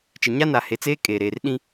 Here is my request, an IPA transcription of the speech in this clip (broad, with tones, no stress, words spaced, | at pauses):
t͡ʃɪ˨ ɲa˦na˨ he˨t͡seː˦ kʼeː˨ ɾeː˨rɗĩ˦